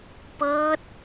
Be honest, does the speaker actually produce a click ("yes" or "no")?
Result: no